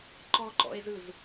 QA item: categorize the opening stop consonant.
click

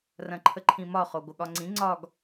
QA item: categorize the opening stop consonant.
click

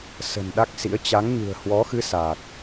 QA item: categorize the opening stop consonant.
implosive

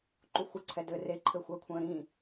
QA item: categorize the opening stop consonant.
click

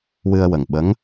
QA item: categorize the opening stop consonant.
implosive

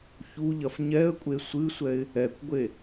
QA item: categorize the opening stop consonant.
ejective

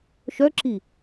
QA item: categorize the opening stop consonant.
click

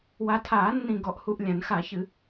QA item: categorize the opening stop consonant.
aspirated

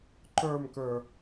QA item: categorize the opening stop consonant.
click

